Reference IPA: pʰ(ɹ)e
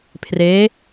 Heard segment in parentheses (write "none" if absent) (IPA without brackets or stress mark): r